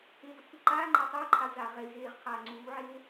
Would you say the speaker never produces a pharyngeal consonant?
no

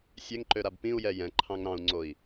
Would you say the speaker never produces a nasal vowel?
no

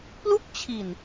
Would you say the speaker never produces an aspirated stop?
no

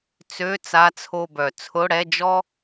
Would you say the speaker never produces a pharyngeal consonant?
yes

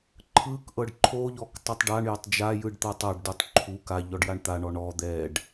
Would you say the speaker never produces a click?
no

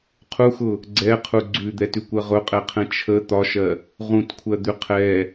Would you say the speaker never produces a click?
no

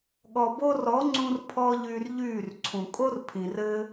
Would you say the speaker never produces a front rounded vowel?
no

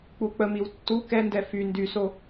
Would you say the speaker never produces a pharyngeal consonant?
yes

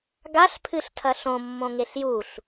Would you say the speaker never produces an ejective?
yes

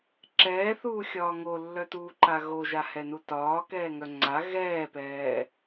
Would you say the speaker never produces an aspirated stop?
yes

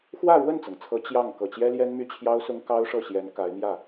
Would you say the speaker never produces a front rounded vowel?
no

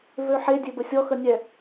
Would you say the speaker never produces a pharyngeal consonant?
no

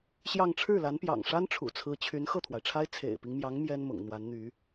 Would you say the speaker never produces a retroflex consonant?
no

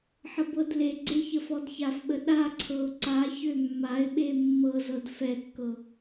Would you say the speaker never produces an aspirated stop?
no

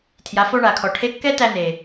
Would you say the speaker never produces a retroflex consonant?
no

